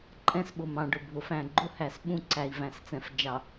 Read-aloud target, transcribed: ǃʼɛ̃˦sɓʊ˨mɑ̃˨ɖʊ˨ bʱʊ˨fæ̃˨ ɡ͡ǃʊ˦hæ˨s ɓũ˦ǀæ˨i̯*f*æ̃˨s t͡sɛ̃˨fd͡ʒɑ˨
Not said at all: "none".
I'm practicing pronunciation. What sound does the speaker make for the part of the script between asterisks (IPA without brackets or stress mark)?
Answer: v